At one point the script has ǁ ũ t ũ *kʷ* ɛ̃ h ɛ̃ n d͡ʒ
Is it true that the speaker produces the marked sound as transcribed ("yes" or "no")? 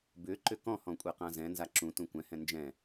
yes